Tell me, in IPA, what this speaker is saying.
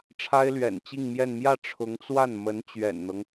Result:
ʈ͡ʂʰ a˥ ɪ̯ l ɥ ɛ̰˨˩ n t͡ɕ i˥˧ ŋ m j ɛ˥˧ n m j ä˥˩ ʈ͡ʂʰ ʊ˧˥ ŋ t͡s w a˥˩ n m ə˧˥ n t͡ɕ ɥ ɛ̰˨˩ n n̪ ɤ˦ ŋ

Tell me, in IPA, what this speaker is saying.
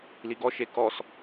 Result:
l i ɡ ɔ ʃ e k ɔ s

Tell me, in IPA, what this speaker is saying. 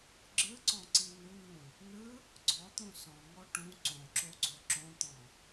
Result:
ɡ͡ǁ ɯ ǀ ɔ̃ ǀ i n u n ũ | n ɯ | ɡ͡ǀ ɔ t̪ ũ s ɔ̃ ŋ ɔ ʈ ũ ǀ õ ǁ o ɡ͡ǀ o ǁ õ t̪ ɔ̃

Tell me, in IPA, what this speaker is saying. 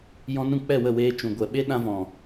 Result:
j ɔ̃˧ n ũ˦˨ k͡p ɛ˦˨ w ə˦˨ w eː˧ t͡ʃ ũ˨ ɡʷ ɛ˨ ɓ e˦ ɗ ã˧ v ɔ̃˨

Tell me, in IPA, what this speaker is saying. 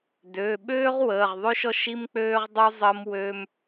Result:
d ø˩˧˩ ɓ øː˥ ʁ w əː˩˧˩ ʁ ðˤ ø˥ ʃ ɔ˥ ʃ i˥ m k͡p øː˥ ʁ dˤ u˥ zˤ əː˥ m w øː˥ m

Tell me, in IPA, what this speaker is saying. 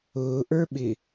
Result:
ʊː ʔ ə˞ ɓ ɪ

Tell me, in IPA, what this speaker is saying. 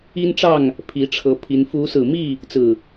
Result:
i˦ n ʈ͡ʂ ɑ˥˨ ŋ | pʰ i˨˦ ʈ͡ʂʰ ɤ˨˦ pʰ i˨˦ n f u˨˦ s ɹ̩˨˩ m i˥˨ | t͡s ɹ̩˨˩

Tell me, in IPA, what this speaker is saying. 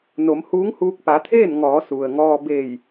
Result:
n o˩˧ m h uː˧˥ ŋ h uː˧ k̚ p a˩˧ t̪ʰ eː˥˨ n ŋ ɔː˩˧ s u˩ ə̯ ŋ ɔː˧ b eː˧˩ j

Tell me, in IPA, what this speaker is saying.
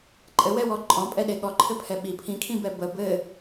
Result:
ǃʼ ɘ w ɛ w ɔ ǃʼ ɔ̃ pʼ ɛ ɗ e ɠ ɔ ǃʰ ɘ pʰ ɛ ɓ i pʰ ĩ kʰ ĩ b ɛ b ə b ɘ

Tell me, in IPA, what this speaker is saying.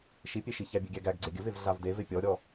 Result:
ʃ i pʲ e ʃ i ç æ bʲ e ɡʲ æ ɡ æ ɡ ɡ͡ǀ e ɡʲ ə v e v ɮ a v d e v e pʲ ɔ ɾʲ ɔ

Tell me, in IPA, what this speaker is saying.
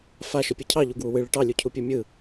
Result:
f a ʃ ɯ pʲ ɯ cʰ ɑ ʎ u ɡ w u w ɨ ɭ ɯ ʈ ɑ lʲ u cʰ u pʲ u mʲ ɯ

